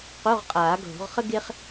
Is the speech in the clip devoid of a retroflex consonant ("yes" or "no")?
yes